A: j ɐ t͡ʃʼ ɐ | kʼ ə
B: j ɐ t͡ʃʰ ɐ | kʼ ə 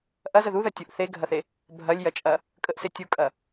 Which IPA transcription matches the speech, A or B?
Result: A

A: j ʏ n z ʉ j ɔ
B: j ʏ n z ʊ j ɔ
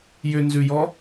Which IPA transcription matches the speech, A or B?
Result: A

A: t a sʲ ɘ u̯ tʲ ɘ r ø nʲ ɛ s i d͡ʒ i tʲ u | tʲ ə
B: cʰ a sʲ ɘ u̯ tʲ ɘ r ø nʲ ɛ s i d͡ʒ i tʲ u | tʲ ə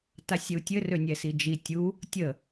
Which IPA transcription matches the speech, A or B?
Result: A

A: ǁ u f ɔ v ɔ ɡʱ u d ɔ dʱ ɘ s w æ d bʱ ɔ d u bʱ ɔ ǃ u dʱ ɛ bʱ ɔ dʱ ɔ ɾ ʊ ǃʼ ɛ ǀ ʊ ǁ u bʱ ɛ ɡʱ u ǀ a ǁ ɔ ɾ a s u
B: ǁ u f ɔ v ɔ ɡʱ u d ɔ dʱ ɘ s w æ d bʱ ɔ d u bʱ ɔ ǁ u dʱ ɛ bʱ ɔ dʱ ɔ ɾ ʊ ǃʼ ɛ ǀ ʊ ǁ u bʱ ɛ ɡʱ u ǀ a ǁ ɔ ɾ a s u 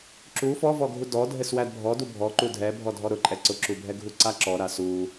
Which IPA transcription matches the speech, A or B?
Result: A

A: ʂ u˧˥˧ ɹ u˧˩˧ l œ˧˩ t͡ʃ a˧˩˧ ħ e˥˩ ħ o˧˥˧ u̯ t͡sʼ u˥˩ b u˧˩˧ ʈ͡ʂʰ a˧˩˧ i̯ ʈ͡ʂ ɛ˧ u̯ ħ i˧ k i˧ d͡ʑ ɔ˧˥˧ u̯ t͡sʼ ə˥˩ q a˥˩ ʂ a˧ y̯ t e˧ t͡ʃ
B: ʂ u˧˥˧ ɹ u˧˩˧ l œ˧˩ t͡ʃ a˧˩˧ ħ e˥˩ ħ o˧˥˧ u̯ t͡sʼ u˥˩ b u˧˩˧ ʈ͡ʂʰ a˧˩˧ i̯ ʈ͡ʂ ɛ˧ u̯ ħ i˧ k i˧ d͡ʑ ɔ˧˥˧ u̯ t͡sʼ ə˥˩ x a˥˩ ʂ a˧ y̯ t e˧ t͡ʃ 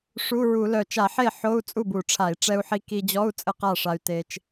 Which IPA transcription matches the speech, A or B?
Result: A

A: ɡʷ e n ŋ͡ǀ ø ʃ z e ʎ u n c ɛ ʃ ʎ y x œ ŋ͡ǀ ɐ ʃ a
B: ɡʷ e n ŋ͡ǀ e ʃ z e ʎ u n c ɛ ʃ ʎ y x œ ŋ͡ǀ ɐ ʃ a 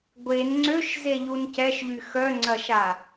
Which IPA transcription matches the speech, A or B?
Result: A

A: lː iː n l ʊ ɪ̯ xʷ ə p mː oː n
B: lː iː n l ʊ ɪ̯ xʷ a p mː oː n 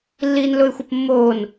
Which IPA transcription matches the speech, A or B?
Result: A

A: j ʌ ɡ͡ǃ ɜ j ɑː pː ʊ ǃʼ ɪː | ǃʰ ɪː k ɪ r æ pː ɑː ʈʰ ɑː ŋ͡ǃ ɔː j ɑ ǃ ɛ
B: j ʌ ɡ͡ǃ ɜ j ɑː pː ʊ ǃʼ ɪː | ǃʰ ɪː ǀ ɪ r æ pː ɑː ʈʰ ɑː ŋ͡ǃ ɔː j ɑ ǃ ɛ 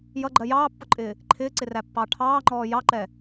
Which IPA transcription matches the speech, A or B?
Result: B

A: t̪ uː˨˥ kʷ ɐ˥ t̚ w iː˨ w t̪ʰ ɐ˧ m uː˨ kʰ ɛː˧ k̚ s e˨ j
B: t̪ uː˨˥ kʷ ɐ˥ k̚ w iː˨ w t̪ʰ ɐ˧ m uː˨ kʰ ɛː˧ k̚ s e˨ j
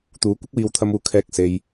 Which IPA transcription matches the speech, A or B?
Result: B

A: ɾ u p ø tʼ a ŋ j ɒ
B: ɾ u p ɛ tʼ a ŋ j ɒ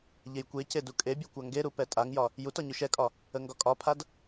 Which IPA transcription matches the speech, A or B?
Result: B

